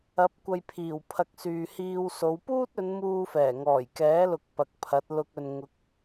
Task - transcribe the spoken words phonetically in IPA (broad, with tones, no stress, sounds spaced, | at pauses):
ɐ˨˥ p̚ kʷ ɐ˧ j pʰ iː˨˩ w pʰ ɐ˨ k̚ s yː˨ h iː˧ w s o˨˧ w p uː˥ t̚ ɵ˨˧ n m uː˧ f ɛː˨˩ ŋ ɔː˨˩ j k ɛː˨˥ l ʊ˨ k̚ p ɐ˨ k̚ pʰ ɐ˨˥ t̚ l ʊ˧ k̚ ɵ˨ n ŋ ʊ˨˥ k̚